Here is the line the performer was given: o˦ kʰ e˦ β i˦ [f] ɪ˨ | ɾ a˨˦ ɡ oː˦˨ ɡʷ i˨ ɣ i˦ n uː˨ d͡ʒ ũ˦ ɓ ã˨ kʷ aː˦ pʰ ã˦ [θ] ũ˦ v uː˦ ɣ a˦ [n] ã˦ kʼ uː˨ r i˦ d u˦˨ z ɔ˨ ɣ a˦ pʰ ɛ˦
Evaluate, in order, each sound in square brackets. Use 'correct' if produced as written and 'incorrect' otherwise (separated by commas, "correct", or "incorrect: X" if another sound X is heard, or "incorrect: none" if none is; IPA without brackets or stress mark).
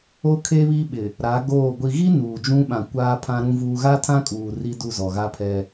incorrect: ɓ, incorrect: ɾ, incorrect: tʰ